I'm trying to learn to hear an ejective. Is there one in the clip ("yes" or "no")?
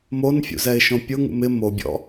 no